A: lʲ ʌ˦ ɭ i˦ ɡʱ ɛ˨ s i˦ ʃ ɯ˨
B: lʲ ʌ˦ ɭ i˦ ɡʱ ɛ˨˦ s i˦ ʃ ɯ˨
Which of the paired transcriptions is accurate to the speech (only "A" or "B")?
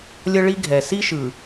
A